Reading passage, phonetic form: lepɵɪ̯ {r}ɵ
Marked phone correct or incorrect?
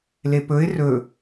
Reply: correct